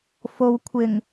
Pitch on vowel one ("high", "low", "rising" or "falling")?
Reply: low